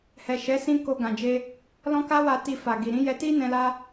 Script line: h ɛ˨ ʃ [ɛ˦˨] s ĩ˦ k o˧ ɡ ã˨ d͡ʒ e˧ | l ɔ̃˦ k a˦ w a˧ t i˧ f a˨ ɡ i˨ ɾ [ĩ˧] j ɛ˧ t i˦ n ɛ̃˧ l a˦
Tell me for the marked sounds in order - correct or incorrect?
incorrect: ɛ˨˦, incorrect: ĩ˨˦

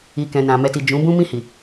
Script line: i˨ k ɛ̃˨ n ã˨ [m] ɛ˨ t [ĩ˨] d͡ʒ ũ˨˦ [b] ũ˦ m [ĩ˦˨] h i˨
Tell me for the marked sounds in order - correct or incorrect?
correct, incorrect: i˨, correct, correct

